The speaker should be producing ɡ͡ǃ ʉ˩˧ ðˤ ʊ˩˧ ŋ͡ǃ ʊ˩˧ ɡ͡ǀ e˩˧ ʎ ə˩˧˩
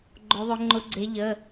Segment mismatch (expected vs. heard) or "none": ʉ˩˧ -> ʊ˩˧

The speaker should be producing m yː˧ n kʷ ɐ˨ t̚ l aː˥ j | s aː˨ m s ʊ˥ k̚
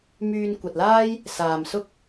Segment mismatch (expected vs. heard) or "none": none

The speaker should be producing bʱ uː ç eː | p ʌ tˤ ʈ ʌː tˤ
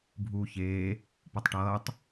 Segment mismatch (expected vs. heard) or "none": none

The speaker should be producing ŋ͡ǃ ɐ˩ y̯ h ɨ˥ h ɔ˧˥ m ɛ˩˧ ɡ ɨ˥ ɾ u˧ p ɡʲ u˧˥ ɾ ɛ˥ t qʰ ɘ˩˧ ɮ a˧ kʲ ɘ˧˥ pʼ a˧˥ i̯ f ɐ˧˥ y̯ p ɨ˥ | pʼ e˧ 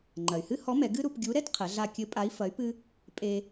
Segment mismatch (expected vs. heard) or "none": none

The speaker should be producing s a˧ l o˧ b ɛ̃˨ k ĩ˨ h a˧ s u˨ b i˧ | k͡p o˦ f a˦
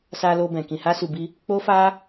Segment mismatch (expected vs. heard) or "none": none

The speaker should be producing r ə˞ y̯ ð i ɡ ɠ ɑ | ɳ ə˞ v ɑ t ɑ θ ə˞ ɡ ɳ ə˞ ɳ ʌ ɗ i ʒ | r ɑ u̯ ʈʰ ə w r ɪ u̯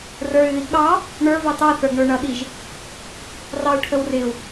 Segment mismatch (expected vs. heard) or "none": none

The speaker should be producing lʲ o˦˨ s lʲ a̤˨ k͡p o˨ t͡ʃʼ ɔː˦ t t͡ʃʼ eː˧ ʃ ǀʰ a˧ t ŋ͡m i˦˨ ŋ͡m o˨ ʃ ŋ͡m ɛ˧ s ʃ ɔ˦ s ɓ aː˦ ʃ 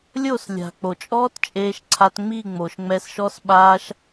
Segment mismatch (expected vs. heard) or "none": none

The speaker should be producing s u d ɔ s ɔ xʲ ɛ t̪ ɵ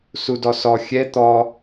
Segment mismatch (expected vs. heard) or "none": ɵ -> ɔ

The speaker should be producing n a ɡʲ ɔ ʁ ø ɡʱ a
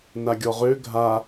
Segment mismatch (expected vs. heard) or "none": none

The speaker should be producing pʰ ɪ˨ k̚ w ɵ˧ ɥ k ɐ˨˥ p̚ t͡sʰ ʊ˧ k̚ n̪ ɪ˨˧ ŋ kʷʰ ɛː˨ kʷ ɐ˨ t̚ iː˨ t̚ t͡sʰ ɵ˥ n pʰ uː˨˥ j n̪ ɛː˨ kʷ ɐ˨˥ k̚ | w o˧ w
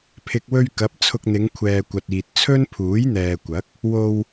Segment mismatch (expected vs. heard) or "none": none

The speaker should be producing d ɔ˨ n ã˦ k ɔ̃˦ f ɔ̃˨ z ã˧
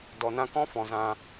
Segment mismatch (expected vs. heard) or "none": none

